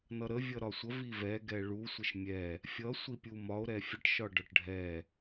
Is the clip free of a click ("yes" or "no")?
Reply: yes